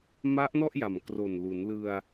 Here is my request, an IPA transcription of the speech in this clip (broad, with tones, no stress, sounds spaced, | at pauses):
m a˦˥ ʔ n ɔ˥˩ ʔ j a˨˩ m k r o˨˩ n l u˩˦ n l ɯ˧ a̯